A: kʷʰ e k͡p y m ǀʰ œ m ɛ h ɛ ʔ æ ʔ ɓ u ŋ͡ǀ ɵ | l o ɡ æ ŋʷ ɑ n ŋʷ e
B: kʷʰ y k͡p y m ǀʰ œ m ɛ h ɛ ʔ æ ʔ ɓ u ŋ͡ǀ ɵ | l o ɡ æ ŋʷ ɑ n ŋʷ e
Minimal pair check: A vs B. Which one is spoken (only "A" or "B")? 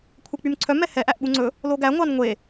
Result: A